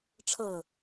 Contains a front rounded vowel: no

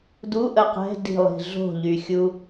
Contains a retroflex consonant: no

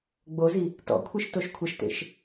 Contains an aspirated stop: yes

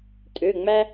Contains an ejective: yes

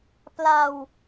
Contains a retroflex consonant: no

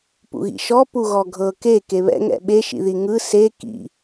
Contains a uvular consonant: no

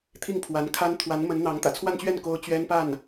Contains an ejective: no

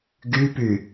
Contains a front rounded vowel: yes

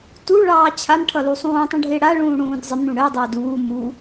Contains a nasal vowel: yes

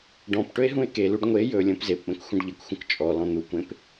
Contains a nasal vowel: yes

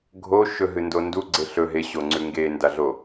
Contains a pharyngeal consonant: no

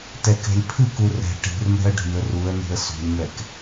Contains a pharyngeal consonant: no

